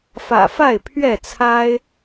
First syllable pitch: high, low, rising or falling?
low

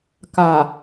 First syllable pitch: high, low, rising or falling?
low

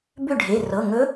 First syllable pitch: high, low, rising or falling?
falling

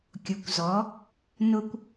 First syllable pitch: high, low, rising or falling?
low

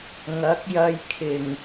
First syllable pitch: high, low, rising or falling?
rising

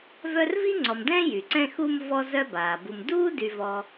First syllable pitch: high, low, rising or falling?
high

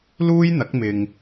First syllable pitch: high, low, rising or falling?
high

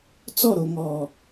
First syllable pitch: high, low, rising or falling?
falling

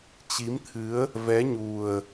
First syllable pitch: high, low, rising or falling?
rising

